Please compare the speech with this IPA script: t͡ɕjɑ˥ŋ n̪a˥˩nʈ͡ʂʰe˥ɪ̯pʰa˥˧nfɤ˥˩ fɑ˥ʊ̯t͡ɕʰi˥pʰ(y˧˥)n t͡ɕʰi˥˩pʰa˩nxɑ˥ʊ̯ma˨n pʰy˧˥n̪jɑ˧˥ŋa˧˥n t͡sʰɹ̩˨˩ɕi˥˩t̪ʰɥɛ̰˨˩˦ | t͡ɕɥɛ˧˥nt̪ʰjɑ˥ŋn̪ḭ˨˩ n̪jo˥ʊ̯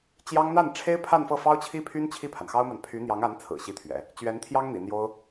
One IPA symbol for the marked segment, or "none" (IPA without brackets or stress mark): y˥